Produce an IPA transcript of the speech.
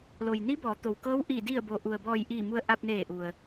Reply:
lo˩jni˧˥bɔː˩˧ t̪o˩wkɤː˧˥w ʔiː˧˩ di˧˩ə̯bo˩ ʔu˩ə̯bɔː˧˩jʔiː˧˩ mu˧ə̯ʔa˧p̚neː˧˩ ʔu˩ə̯

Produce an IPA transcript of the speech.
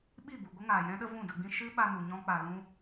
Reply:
ɓi˦˨bu˨ ɡʷə˦ŋaː˨jɛ̃˦ɗə˦ vũ˦˨də˧ɡ͡bĩ˦ ʃɨ˦ɓa˧mu˨ ɲɔ̃˦k͡pa˧lũ˦

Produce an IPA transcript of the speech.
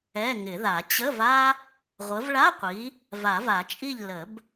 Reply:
ɛ˧˥˧ŋɪ˨˩˦ða˨˩˦ t͡ɕə˧˥˧v a˥ | ʁʷə˨˦vɭa˧˥˧qʷi˨˦ | va˨˩˦va˨˩˦t͡ʃʼi˥˨ʎ lə˨˩˦b

